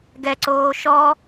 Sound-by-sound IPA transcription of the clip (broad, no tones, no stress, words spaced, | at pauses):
ɡɛǀoː ʃɔ